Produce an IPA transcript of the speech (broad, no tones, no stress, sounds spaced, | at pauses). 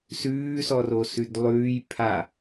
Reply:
s ʉː s ɔ r o s ʉ d lˠ ʉː j pʰ a